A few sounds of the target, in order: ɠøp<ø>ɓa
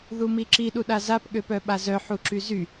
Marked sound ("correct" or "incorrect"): incorrect